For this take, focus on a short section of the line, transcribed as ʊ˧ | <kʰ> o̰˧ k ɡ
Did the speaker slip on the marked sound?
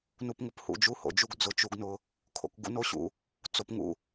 no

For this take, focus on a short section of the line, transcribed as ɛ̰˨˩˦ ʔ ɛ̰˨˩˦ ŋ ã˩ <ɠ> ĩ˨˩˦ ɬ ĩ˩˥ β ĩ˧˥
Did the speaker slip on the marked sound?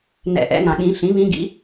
no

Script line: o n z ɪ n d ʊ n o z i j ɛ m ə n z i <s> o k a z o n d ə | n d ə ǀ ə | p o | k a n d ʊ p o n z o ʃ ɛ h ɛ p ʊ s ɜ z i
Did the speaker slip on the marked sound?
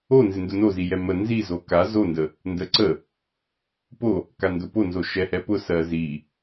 yes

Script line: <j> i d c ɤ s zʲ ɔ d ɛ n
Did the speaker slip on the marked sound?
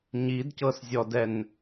yes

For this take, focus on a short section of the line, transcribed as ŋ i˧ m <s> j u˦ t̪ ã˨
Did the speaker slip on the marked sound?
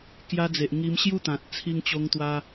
yes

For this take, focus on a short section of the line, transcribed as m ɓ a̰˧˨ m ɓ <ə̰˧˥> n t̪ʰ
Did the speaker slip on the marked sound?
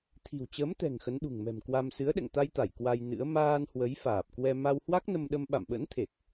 no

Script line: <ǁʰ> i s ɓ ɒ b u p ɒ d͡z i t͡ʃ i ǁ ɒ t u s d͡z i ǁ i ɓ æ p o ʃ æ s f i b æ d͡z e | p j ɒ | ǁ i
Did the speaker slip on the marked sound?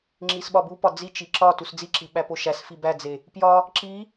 yes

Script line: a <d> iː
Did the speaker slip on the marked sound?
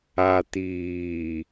yes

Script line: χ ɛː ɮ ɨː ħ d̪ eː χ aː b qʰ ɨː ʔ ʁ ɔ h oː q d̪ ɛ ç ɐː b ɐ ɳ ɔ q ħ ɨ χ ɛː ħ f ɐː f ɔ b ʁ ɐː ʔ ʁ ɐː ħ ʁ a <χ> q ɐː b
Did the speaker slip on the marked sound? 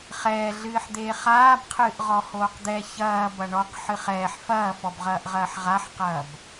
yes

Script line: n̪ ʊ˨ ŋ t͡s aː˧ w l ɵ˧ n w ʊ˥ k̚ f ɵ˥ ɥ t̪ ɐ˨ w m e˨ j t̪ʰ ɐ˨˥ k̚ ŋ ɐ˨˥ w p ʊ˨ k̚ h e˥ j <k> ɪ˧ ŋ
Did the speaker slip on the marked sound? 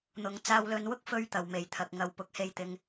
yes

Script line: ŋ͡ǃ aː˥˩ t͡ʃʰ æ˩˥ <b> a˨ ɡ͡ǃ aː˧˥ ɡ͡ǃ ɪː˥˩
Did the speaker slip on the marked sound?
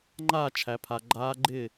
yes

